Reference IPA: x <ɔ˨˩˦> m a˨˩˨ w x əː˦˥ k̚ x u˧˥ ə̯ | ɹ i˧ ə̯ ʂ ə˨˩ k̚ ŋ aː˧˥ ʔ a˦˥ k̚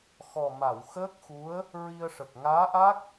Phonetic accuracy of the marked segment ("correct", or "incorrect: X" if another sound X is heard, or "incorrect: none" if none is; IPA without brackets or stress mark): incorrect: ɔ˨˩